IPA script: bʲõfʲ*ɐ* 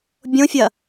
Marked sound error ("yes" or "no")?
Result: no